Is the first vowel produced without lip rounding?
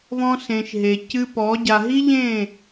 no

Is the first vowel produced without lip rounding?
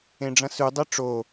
yes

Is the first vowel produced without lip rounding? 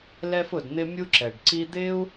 yes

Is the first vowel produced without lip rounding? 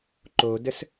no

